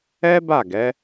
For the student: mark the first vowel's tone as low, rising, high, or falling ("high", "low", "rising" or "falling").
high